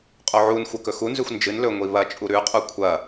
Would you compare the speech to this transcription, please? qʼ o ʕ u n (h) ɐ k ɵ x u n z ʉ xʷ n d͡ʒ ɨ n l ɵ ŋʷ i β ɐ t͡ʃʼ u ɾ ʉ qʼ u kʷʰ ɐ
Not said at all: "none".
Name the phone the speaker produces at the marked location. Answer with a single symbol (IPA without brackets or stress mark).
xʷ